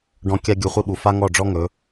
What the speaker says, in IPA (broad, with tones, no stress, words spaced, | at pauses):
ɖɔ̃˧ kʲa˧ ɡʲu˧χʷi˦ɓu˨ fa˦ŋɔ˦˨ɖ͡ʐɔ˦ ŋɵ˨˦